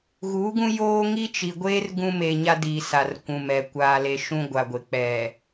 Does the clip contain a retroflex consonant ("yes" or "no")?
no